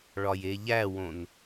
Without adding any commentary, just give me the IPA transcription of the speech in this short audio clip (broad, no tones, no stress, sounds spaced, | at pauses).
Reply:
ɭ ɒ j e ʎ æ w õ n